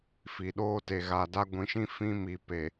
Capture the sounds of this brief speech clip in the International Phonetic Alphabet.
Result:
f i˨ ɗ oː˦ t e˨ ɣ a˨ d a˦ ɡʷ ĩ˨˦ ʃ ĩ˦ f ĩ˦ m i˨ p e˨

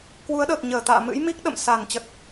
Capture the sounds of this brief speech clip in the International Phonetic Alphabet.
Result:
k w u˨˦ ə̯ ɗ əː˨˩ k̚ ɲ əː˧˩ t̪ a̰ː˧˨ m ɨ̰˧˥ j m i˦˥ k̚ ɗ ə̰˧˨ m s a˧˩ n t͡ɕ ə˨˩ t̚

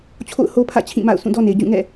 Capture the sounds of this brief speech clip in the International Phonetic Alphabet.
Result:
t͡ɕʰ o̰˦˨ ʊ̯ h o˦ pʰ ä̰˦˨ t͡ɕʰ ĩ˦˨ m a̰˦˨ ʊ̯ s ũ˦˨ d ɔ˦ n e˨ ɪ̯ d͡ʑ ũ˦˨ ŋ ɛ̰˦˨

